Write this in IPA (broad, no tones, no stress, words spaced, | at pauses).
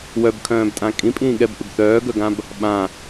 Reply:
wœbkʰœ̃ːbtʼã kʼĩpʼĩː ɠɛbʔʏb θœːɡœɡãb | ɓã